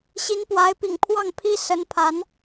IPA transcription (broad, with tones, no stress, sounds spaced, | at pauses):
ɕ i˧˥ n p w a˧˥ ɪ̯ p ḭ˨˩ ŋ pʰ w ɑ˥˩ ŋ pʰ i˥ s ə˧˥ n pʰ a˧˥ n